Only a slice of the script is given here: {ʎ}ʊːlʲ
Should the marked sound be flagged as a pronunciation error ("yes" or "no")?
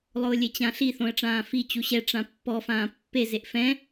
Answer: yes